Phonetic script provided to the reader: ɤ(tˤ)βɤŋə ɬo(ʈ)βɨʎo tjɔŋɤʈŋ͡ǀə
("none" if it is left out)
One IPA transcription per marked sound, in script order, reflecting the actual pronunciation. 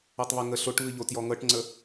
tˤ, ʈ

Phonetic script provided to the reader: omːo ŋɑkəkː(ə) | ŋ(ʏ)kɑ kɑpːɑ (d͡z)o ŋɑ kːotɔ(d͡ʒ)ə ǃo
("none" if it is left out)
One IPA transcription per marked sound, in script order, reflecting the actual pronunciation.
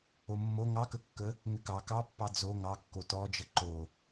ə, ʏ, d͡z, d͡ʒ

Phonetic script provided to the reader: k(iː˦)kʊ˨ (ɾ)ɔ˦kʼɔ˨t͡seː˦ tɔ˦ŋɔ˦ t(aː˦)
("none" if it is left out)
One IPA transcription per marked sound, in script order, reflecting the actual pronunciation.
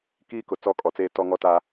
iː˦, t͡s, aː˦

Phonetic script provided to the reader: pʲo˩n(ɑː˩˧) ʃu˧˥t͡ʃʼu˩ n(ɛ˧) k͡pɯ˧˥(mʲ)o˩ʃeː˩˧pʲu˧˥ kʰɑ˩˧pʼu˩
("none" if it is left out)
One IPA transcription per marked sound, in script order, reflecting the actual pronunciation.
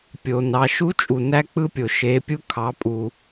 ɑ˩˧, æ˧, pʲ

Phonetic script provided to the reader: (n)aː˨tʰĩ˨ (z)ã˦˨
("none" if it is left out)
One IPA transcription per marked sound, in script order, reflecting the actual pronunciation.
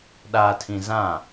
ɗ, z

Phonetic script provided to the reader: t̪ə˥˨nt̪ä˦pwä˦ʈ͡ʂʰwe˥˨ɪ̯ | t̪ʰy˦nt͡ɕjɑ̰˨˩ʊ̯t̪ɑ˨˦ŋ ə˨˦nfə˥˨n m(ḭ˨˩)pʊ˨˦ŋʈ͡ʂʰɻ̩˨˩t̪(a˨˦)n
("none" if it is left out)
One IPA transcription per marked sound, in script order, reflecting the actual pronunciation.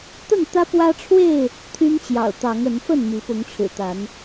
i˨˦, a˨˦

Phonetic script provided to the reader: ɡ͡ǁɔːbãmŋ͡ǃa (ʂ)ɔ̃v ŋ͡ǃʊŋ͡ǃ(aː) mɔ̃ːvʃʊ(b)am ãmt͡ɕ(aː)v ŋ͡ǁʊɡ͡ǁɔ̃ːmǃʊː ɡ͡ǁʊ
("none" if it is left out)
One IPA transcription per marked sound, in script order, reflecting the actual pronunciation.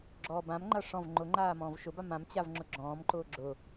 ʂ, aː, b, a

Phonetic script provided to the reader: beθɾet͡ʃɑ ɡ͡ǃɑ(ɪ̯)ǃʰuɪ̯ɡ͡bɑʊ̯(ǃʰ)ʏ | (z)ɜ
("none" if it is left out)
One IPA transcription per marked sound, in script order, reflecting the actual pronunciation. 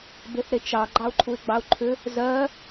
ʊ̯, ǃʰ, z

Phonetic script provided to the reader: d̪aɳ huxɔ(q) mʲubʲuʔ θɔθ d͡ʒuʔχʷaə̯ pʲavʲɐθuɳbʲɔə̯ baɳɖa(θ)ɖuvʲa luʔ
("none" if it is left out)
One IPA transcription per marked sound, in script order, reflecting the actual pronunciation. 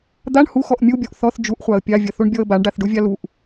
ʔ, θ

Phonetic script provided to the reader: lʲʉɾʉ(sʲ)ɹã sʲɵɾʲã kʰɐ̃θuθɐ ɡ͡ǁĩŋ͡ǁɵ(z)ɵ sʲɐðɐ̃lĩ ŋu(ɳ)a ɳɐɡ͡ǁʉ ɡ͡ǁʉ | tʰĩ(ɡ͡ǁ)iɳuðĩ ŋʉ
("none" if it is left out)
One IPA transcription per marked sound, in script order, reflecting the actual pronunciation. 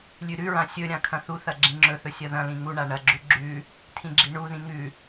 none, θ, ɳ, ɡ͡ǁ

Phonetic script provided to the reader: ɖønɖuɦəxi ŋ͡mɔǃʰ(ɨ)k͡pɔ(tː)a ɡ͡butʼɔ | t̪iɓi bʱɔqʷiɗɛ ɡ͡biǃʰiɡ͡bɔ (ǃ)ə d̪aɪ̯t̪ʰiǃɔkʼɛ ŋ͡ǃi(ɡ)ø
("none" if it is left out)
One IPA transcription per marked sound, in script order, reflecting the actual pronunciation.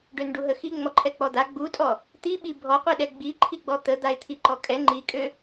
ɛ, d̪, t̪, kʼ

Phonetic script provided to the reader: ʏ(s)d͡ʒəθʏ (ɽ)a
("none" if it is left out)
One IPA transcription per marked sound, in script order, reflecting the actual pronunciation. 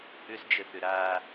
s, ɾ

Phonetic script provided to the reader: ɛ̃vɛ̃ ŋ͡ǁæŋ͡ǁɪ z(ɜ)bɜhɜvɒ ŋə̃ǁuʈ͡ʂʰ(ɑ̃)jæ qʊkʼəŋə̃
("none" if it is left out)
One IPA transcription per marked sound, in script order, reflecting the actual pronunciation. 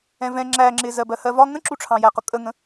ɜ, ɑ̃

